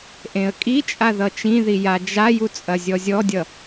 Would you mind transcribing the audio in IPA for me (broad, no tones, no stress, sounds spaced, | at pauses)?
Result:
ʔ ẽ ə̯ kʼ i t͡ʃʼ a ð ʌ t͡ʃ ĩ ð i j a d͡ʒ a j u t͡sʼ ɐ zʲ ɔ zʲ ɔ dʲ ʌ